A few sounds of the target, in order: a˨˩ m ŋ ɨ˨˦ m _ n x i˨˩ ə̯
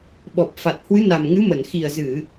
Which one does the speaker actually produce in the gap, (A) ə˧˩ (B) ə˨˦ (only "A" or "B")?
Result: A